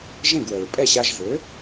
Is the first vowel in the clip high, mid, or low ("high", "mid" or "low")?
mid